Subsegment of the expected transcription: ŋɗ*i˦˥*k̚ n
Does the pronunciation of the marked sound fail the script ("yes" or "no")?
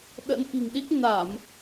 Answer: no